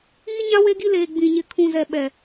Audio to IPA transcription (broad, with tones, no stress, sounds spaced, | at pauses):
iː˦ ɲ ã˦ w e˦ ɡ i˦ l eː˨ ɡ͡b ĩ˨ ɲ ɪ˨ kʰ ũ˨ z ɛ˨ ɓ ɛ˨